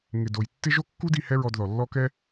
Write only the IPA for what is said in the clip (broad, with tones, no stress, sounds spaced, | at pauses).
ŋ ɪ˨ d o˨ j tː ɪ˦ ʒ o˦ kː u˦ d i˧ h ɛ˦ ɹ ɔ˧ d ð ɔ˨ lː ɔ˦ k ɛ˦